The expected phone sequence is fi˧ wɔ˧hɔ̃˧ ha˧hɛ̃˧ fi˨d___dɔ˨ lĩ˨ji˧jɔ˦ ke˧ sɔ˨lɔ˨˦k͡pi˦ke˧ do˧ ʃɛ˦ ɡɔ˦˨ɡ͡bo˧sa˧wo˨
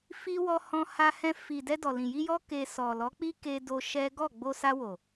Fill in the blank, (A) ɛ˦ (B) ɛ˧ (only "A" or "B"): B